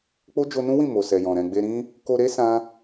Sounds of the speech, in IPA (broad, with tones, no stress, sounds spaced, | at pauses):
k͡p o˦ d͡ʒ o˧ n ũ˦ w ĩ˦˨ m o˨ s ɛ˨ j ɔ̃˨ ɾ ɛ̃˨ ɡ͡b e˧ ɾ ĩ˦ | k o˧ ɾ e˦ s ã˦